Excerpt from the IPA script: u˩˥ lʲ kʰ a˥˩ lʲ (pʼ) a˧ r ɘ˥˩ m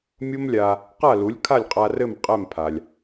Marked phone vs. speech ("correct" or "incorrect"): incorrect